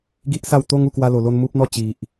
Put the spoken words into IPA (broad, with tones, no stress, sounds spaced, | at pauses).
ɡ i˦ ʔ s a˥˧ w t̪ o˦ ŋ u˥˧ k w a˦ l o˧ l o˦ n m u˦ p̚ n̪ ɔ˥˧ t͡ɕ i˨ ʔ